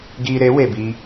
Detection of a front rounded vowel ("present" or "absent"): absent